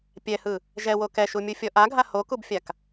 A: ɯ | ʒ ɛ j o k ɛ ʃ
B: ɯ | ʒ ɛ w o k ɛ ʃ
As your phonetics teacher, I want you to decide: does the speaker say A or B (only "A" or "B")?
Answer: B